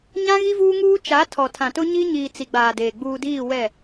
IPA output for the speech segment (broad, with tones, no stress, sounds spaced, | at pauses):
ɲ ã˦ ɣ i˦ v uː˦ ŋ uː˦ t͡ʃ a˨˦ tʰ ɔ˨ tʰ ã˨ t ʊ˦ ɲ i˦ ɲ iː˨ t͡s i˨ ɡ͡b aː˨ d eː˨ ɡ͡b uː˨ d iː˦˨ w ɛ˦˨